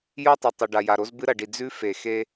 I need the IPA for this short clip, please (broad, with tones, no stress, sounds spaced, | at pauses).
j o˦˨ tˤ e˨ tˤ ɵ˨ ɖ a˨ j a˨ ɾ o˦ z b ɨ˦ ɾ ɐ˨ ɖ i˨ d͡z ʉ˦ f e˨ x e˦